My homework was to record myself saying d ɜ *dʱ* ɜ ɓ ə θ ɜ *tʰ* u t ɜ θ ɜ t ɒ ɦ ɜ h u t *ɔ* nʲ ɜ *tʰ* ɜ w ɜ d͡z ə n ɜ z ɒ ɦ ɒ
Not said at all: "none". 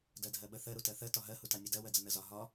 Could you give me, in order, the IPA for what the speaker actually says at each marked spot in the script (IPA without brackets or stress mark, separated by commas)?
dʱ, ɾ, ɑ, d